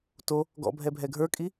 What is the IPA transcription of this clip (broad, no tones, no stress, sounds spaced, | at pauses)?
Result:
t o | ɡ ɔ̰ bʱ ɛ bʱ ɛ ɡʱ ə˞ kʼ i